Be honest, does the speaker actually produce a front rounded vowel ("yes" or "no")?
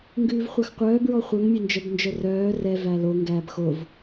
yes